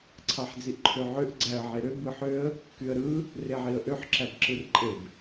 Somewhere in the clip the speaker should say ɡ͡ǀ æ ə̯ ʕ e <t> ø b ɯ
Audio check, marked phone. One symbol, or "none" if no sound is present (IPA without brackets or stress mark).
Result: ɾ